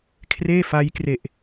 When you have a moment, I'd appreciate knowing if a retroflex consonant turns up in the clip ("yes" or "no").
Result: no